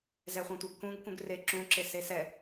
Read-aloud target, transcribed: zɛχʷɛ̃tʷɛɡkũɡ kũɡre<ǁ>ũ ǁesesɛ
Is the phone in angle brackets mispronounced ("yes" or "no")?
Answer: no